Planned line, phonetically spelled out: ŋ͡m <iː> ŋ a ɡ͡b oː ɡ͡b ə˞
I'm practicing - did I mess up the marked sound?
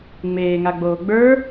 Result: yes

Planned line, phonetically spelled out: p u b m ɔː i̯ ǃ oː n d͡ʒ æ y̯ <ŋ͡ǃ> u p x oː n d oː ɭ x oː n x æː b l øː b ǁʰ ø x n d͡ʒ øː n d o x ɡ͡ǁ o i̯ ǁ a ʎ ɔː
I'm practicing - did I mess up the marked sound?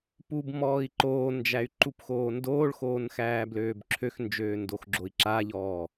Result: yes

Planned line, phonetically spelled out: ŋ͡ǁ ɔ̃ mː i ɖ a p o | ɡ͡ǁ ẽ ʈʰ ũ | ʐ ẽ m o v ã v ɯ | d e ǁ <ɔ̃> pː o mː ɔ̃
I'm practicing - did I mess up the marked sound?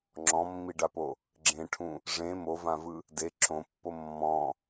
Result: yes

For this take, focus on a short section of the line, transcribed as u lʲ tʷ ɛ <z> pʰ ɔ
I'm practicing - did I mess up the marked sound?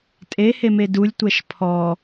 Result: yes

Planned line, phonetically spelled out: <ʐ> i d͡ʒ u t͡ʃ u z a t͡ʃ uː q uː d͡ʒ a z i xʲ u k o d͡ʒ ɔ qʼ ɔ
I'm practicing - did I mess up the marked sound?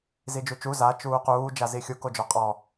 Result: yes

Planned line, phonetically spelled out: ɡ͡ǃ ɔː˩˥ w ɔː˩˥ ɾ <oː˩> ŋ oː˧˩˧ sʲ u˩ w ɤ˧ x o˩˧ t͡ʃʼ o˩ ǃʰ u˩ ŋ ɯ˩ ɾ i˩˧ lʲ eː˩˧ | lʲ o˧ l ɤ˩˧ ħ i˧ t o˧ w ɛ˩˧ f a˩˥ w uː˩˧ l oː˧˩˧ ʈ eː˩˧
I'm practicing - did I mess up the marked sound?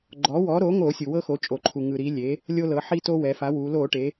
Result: yes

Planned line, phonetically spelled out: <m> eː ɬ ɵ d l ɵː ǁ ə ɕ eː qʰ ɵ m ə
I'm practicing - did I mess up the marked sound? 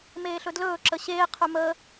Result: no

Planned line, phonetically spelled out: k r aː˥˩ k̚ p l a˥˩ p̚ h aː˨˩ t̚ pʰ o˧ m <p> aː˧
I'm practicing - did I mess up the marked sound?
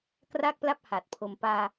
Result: no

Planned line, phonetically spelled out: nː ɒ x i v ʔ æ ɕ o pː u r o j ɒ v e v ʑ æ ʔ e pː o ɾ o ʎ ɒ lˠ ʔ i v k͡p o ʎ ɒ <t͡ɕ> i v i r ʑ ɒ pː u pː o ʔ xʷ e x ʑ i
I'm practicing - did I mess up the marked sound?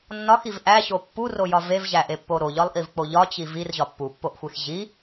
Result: no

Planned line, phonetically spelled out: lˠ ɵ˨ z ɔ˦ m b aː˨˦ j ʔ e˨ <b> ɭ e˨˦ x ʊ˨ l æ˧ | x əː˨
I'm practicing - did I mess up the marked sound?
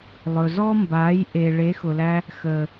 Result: yes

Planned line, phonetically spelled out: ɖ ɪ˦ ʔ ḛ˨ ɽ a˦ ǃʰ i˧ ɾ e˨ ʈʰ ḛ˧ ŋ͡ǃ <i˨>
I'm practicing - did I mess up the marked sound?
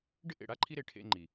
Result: no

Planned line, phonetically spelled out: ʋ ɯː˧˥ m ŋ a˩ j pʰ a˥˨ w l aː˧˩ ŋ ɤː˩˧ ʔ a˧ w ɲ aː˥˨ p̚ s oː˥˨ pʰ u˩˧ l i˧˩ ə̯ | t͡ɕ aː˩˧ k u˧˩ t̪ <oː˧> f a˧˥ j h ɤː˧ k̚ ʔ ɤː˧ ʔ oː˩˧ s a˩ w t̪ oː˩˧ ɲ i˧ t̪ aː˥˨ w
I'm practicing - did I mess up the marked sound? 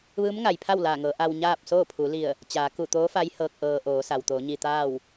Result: yes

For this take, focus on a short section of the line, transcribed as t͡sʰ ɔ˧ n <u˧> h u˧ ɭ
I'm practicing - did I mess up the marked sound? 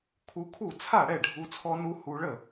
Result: no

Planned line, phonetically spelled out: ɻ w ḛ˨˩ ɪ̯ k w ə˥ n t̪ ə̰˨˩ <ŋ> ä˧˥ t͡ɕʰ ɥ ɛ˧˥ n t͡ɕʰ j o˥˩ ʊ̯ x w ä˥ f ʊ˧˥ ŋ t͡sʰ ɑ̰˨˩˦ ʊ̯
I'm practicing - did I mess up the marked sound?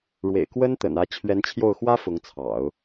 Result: yes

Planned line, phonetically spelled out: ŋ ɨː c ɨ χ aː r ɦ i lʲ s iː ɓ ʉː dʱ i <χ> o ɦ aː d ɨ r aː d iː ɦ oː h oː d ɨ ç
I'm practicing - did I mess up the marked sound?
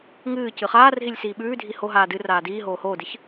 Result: yes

